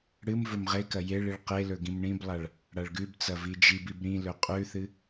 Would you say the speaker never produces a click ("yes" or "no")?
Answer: yes